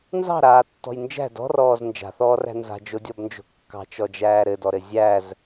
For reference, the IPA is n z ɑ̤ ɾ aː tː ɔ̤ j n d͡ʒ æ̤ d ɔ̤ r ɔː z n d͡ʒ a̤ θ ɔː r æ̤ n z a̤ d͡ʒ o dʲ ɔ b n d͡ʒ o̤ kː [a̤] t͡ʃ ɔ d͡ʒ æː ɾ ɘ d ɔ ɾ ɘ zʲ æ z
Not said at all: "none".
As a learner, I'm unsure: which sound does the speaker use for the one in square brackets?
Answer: ɑ̤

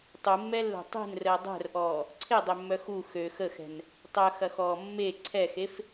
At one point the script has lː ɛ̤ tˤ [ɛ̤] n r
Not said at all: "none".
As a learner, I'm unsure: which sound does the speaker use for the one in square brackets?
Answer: e̤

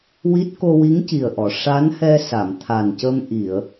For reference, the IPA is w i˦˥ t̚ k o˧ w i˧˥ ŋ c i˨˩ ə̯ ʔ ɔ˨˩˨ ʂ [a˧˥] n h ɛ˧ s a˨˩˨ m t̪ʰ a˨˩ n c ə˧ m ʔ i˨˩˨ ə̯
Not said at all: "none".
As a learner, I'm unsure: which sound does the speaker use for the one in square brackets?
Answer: a˧˥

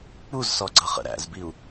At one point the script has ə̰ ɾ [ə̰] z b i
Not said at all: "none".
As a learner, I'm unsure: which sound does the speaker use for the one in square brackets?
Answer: æ̰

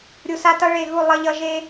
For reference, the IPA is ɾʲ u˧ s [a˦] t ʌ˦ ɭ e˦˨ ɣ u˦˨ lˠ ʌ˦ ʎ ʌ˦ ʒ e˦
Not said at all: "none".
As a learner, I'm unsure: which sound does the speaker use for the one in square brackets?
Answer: a˦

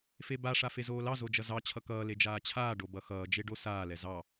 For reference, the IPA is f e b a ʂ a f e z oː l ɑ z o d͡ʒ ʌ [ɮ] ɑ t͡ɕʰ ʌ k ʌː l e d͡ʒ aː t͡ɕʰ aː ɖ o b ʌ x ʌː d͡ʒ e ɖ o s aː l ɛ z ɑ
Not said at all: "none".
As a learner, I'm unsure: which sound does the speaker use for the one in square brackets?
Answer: z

